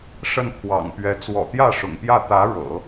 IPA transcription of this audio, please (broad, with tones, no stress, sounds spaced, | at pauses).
ʂ ə˥˩ n pʰ w ɑ̰˨˩ ŋ p ɥ ɛ˧˥ t͡s w ɔ̰˨˩ t̪ j ä˥˩ ʂ ʊ̰˨˩ ŋ p j ä˥˩ t̪ ä˧˥ ɻ ɤ̰˨˩˦